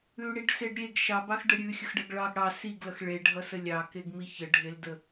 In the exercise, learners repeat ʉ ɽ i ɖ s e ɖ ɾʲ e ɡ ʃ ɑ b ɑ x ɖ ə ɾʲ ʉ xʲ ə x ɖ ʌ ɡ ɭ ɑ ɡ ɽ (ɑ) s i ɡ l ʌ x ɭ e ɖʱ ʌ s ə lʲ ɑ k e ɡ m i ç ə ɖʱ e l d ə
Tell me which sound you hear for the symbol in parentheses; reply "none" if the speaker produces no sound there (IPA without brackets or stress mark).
ɑ